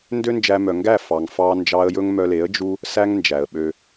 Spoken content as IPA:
n d ø˦ n d͡ʒ æ˧ m œ˨ ŋ ɡ æ˦˨ f ɑ˨ ŋ f ɑ˧ n d͡ʒ ɑ˧ ə̯ j ɵ˦ ŋ m œ˧ l e˨˦ ə̯ d͡ʒ u˧ | s æ˦ ŋ n d͡ʒ æ˨ ə̯ ɓ ø˧

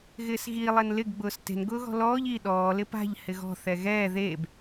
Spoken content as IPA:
ɣ ɪː s ɣ i lˠ ɛ n l ɪ ɡ ɡ͡b ʊː s t e̤ n ɡ ʊː ɣ ɔ̤ l ɔː ʎ i ɗ ɔː l ɪ p a̤ ʎ h ɪ ɣ ɔ̤ θ ɛ ɣ ɛː ð eː b

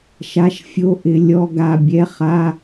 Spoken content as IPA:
ʃ a˧˥˧ ʃ fʲ o˧˥˧ ʔ ɪ˨˦ lʲ ɔ˧˥˧ ɡ a˥˨ bʲ ɛ˧˥˧ χ a˧˥˧

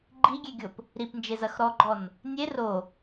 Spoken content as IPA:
ɡ͡ǃ i ɡʲ e ɡʲ o p | ɾ i p n d͡ʒ e z ɐ x ɾ ɔ ɡ͡ǃ ɔ n | nʲ e r o

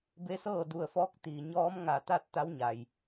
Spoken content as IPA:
b e˧˥ s ɤː˥˨ d u˧˩ ə̯ f ɔː˧˥ k̚ t̪ iː˩ ɲ ɔː˧˥ m ŋ a˧˩ t̪ a˥˨ t̚ t̪ a˧˥ w ɲ a˩ j

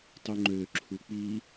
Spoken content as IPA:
tˤ y ŋ͡ǃ ø ǁʰ u k͡p i

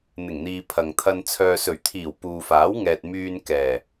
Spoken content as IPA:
n̪ ɪ˨˩ ŋ n̪ iː˨ pʰ ɐ˨ ŋ t̪ʰ ɐ˧ n t͡sʰ œː˨ s ɵ˨˩ ɥ t̪ʰ iː˨˩ w p uː˨ f aː˨˥ w ŋ ɛː˨ t̚ m yː˨ n k ɛː˨˩

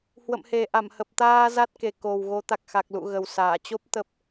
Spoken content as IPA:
h w ə̰˧˨ m h e˨˩ ʔ a˧˩ m h ə˨˩ p̚ t̪ aː˧ z a˦˥ t̚ k e˨˩ k o˨˩ w ɣ o˨˦ t̪ a˨˩ k̚ x a˨˩ k̚ l ṵ˧˨ ɣ ə˨˩ w s aː˧˩ t͡ɕ o˦˥ p̚ t̪ ə˦˥ p̚

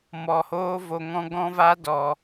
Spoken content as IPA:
m ɔ˨ h oː˦ v o˨ ŋ ɔ̃˧ ɡ ɔ̃˦ v a˦ d ɔ˨

